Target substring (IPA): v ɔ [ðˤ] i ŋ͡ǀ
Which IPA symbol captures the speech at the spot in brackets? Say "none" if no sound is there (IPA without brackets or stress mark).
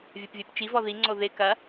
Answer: ð